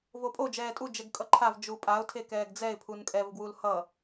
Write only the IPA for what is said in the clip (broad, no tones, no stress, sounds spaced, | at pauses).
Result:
v o pʼ o d͡ʒ ɛː tʼ u d͡ʒ ɛ ɡ kʼ ʌ ǃʰ a v d͡ʒ u pʼ a ʊ̯ tʰ e k ɛː ɡ d͡z ɛ ɪ̯ pʰ u n kʼ ɛ v ɡ w u l h ʌ